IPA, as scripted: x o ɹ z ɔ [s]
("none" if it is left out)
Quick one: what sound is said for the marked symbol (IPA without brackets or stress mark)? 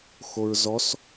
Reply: s